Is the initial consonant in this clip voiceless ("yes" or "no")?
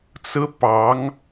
yes